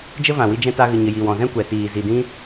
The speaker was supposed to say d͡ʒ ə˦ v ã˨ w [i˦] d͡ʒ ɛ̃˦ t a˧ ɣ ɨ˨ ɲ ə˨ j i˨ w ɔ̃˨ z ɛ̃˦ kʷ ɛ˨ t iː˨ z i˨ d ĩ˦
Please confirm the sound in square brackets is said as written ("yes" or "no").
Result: no